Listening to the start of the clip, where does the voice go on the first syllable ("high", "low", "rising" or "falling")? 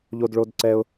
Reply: low